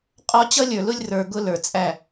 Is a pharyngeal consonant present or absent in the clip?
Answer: absent